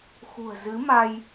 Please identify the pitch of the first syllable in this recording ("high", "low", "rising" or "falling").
low